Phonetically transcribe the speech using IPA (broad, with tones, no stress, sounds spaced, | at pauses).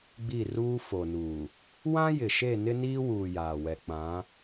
ɡ͡b i˦˨ r uː˦ f o˨ n uː˨ | w ã˦ j ɪ˨ ʃ e˦˨ n ɪ˦ n iː˦ w uː˨ j aː˨ w ɛ˨ k͡p ã˨˦